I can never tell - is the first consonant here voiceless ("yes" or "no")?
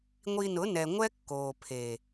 no